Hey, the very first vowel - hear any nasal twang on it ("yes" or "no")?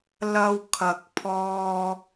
no